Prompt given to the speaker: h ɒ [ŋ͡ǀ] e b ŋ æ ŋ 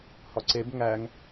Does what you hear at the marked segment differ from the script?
yes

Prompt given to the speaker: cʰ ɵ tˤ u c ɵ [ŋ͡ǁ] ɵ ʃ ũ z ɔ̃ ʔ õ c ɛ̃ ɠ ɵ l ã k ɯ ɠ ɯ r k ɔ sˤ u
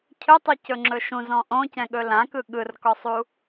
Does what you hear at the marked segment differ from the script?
no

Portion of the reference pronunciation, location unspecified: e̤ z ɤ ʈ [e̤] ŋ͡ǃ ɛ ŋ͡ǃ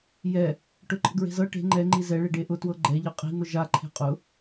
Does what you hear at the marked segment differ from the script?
no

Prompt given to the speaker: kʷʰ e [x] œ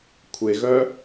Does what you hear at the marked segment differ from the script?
yes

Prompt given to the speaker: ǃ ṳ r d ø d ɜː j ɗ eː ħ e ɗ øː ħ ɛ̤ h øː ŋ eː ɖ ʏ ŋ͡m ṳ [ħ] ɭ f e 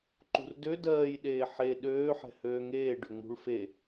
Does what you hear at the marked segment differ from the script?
yes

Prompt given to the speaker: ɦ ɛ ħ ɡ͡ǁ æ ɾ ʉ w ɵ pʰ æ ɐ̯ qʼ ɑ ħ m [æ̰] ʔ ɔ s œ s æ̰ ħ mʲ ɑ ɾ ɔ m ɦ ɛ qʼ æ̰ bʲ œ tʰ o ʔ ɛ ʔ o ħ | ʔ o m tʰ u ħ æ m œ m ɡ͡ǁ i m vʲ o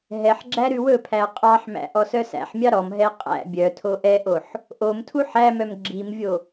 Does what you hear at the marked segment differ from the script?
no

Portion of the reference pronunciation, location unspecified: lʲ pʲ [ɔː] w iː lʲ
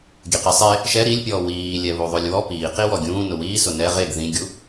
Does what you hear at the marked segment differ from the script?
no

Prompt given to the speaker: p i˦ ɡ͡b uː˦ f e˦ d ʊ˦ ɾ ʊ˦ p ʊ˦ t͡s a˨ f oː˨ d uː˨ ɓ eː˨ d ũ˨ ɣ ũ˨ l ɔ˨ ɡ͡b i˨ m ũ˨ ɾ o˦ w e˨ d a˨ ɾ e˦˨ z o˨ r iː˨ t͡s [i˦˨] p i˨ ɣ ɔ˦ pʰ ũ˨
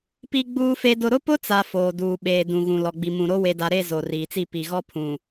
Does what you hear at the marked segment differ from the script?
no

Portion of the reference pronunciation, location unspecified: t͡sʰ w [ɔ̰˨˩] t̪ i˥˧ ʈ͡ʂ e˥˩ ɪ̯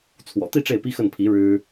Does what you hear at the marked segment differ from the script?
no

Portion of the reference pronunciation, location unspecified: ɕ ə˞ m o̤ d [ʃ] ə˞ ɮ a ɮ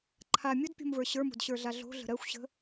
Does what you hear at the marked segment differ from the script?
yes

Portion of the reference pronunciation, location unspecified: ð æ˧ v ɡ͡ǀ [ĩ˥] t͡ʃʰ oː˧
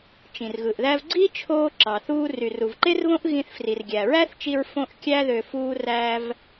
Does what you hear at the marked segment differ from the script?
yes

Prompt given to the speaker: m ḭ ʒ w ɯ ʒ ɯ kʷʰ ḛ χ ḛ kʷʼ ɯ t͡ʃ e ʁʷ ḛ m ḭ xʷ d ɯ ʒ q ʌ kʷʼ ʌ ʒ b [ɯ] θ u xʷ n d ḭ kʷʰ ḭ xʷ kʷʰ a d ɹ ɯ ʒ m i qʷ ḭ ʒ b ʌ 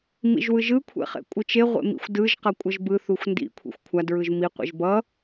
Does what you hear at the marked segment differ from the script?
no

